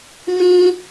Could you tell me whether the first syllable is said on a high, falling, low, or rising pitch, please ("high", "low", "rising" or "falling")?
high